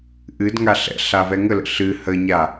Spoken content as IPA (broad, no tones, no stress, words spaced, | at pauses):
ʔɨdŋa ɬɛ̰ɬa vɛŋələ̰ ɬɨ həɲa